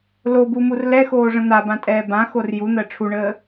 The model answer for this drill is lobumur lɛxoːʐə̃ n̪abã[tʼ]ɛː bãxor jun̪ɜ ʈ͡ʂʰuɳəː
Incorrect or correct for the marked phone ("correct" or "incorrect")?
correct